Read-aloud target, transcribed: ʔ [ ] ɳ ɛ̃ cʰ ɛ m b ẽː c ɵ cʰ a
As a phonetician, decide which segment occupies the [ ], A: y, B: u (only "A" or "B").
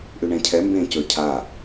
A